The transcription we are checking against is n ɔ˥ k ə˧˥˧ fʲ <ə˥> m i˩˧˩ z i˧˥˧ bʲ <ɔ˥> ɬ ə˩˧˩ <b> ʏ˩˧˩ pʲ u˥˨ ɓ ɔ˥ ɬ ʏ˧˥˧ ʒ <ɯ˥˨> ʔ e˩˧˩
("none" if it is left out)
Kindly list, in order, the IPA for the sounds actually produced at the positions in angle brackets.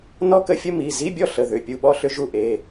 ə˥, ɔ˥˨, ð, u˥˨

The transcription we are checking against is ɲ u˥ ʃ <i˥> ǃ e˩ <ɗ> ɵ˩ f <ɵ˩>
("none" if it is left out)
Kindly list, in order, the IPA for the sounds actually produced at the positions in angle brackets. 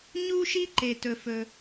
i˥, t, ɵ˩

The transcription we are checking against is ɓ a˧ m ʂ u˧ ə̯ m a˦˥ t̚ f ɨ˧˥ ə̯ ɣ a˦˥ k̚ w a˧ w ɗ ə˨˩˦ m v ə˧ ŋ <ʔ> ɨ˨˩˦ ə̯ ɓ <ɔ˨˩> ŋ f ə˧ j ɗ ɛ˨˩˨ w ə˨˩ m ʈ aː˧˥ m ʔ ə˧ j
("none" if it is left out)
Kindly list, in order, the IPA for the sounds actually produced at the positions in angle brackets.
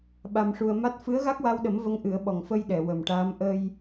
ʔ, ɔ˨˩

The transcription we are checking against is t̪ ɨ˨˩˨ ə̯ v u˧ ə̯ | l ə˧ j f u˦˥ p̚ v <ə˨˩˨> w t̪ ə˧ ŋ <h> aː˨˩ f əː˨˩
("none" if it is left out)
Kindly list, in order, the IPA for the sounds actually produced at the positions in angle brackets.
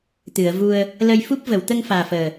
ə˨˩˨, f

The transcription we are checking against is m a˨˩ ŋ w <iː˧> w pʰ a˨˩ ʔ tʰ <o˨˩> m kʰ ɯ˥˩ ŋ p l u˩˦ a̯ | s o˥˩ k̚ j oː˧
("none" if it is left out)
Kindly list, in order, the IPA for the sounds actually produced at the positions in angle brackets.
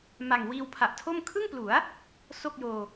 iː˧, o˥˩

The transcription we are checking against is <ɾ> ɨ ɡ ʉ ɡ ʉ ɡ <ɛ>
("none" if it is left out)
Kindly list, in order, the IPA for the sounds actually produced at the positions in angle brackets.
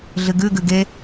ɮ, e

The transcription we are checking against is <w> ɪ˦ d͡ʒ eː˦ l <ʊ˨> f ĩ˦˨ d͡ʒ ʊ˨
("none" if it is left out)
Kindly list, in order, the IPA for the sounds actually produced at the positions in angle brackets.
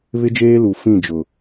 β, u˨

